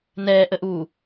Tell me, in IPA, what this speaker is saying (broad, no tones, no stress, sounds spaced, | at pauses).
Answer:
n ɛː ʔ ə ʔ uː